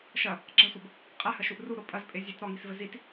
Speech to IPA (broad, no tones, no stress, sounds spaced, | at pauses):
ʃ ɐ | ɡ͡ǁ a sʷ ɘ b | qʼ ɛ h ɐ ʃ u ʔ r u ɾ o pʼ ɐ z pʼ e zʲ e t ɾ ɔ ŋ i s v ɘ z i t